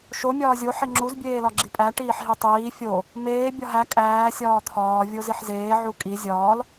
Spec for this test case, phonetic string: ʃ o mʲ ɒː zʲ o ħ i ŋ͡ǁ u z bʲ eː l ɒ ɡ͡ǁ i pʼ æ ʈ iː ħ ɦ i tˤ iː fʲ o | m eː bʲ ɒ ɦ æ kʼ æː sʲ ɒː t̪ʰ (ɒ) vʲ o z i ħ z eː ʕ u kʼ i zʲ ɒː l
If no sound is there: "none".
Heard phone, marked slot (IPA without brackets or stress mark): ɒː